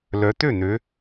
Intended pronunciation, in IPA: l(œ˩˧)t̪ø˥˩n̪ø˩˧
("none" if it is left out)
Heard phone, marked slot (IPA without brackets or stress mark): œ˩˧